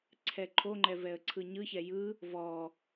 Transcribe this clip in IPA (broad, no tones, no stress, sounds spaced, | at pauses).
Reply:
ǀʰ ɛ ǃʰ o ŋ͡ǃ ɛ v ɛ ə̯ ǀʰ ɯ ɲ ɯ ç ɛ j ɯ | v ɔ